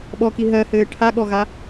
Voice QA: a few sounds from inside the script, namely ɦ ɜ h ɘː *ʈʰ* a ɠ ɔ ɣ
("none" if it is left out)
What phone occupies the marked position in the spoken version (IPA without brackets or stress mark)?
ʈʰ